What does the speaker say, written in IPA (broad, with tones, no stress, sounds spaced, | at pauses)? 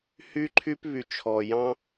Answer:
h y˦ ǃʰ y˦ p β y˨ t͡ʃʰ ɔ˨ j ɑ̃˦